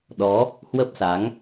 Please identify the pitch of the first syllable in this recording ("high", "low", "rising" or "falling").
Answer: rising